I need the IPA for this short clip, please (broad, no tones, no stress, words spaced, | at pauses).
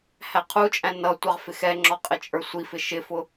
hæqʰut͡ʃʼæ̃ nʌ tʷɑʁfɪxɛŋ͡ǁɔ qʼɪt͡ʃʼə˞sʷifɪ ʃɪfʊ